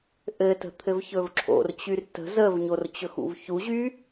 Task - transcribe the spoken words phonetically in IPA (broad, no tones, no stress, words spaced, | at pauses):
ʔɘtə̤ t̪ʰɘvçɵvǁʰo̰rt͡ɕyr tə̤ zəvɲor t͡ɕɵxṵvçuʑy